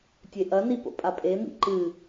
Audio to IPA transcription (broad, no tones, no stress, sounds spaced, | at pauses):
tʲ e ʔ ɐ n i p o̰ pʼ a pʼ e m ḭ ǃ ɨ